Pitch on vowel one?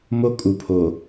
high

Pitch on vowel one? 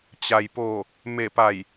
low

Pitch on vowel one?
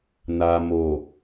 low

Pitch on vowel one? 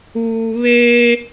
low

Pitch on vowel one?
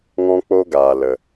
high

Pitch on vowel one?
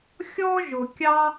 high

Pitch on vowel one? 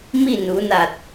falling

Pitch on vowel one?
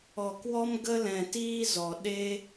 low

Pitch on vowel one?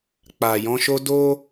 low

